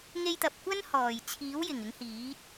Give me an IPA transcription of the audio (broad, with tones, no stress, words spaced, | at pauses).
ŋe˧jt̪ɐ˨p̚ kʷɐ˥nhɔː˨˩j t͡sʰiː˨˥wjɪ˨˩ŋ ɪ˨˥ŋhiː˨˥t̚